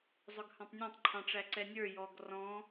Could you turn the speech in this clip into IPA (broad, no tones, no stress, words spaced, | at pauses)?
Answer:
zˤʊɡhɑ̃tˤnʲɑ̃tˤ ǃʰɑ̃ʈ͡ʂæǀɛnʲə˞ jɔɡ rɔ̃